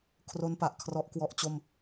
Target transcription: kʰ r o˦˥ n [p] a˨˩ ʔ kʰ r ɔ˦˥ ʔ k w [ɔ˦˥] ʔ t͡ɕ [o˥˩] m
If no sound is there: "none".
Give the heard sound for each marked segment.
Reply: p, ɔ˦˥, o˥˩

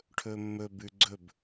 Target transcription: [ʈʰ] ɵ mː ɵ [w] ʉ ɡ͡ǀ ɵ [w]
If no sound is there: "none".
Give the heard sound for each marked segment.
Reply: ʈʰ, b, b

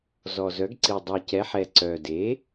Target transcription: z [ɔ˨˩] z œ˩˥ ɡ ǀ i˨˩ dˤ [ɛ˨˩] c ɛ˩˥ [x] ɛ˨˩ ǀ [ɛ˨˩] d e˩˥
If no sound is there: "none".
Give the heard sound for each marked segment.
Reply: ɔ˨˩, œ˨˩, ħ, œ˨˩

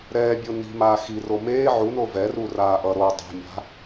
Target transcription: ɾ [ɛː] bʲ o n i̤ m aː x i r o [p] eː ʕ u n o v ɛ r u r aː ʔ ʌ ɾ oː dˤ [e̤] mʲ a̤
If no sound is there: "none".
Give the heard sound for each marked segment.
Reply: ɛː, m, e̤

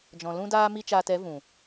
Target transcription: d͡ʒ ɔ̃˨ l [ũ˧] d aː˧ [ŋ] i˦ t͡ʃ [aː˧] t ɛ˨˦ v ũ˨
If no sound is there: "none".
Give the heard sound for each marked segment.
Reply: ũ˧, m, aː˧

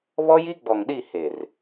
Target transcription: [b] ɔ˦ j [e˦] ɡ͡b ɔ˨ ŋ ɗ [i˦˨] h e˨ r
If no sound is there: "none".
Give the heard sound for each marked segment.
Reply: β, i˦, i˦˨

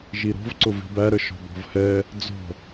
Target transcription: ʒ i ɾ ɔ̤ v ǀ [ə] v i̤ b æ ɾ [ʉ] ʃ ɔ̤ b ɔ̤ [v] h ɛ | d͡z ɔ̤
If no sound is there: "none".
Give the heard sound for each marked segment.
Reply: ʊ, ə, v

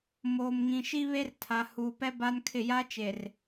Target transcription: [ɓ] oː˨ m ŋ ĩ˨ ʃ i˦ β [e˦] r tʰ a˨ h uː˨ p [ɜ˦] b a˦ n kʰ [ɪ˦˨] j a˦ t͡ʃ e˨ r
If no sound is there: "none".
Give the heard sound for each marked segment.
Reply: m, e˦, ɛ˦, ɪ˦˨

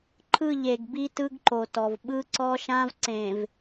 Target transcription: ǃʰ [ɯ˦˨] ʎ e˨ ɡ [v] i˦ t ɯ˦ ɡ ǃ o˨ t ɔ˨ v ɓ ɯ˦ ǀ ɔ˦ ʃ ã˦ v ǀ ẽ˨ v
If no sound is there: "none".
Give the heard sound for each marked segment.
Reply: ɯ˦˨, b

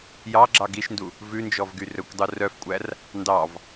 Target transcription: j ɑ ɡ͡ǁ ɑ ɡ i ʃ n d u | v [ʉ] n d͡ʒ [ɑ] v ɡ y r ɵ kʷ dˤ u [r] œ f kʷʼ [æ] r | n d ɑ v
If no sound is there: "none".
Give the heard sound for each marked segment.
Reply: ʉ, ɔ, r, æ

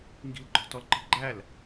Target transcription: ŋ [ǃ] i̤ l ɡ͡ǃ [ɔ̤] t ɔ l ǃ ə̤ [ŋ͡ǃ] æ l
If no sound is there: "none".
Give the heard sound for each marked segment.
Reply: ɡ, ɔ̤, ɡ͡ǃ

